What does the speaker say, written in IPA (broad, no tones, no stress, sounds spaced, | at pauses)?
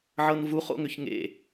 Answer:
ʕ ɤ n v u χ o̰ ŋ ʏ ç ŋ ḛ